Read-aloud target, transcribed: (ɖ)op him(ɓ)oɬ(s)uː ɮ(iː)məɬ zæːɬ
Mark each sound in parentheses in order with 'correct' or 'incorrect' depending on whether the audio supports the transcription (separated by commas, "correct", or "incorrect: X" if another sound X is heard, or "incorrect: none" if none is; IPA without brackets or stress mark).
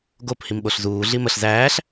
incorrect: ɡ, correct, incorrect: z, incorrect: i